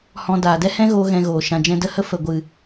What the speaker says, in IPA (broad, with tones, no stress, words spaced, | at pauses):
hɔ̃˧daː˨ dɛ˦hɛ̃˦ɣoː˧ ɣɛ̃˧ɣoː˨ ʃã˨d͡ʒɛ̃˧də˦hə˦ fə˨ɡʷɨ˨